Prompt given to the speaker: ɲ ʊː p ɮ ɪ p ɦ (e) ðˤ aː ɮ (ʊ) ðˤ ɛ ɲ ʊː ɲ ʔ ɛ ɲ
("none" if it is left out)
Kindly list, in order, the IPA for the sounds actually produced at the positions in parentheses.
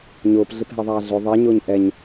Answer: ɛ, ʊ

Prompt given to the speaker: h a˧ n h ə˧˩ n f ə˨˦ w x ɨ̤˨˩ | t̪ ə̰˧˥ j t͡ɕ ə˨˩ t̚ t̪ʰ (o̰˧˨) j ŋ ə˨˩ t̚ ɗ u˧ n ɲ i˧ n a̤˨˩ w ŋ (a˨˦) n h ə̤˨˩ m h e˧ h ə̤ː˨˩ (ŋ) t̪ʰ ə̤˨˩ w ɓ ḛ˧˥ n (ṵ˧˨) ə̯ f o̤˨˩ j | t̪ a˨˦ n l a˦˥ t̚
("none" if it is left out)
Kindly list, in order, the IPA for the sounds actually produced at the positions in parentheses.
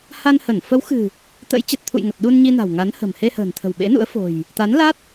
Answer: ṵ˧˨, a˨˦, n, ṵ˧˥

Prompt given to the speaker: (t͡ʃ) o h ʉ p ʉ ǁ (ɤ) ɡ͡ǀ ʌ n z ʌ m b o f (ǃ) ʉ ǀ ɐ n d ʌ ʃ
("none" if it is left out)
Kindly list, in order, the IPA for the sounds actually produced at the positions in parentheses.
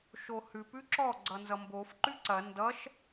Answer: ʃ, ɔ, ǃ

